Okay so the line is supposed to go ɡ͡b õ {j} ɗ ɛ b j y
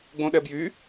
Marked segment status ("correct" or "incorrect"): incorrect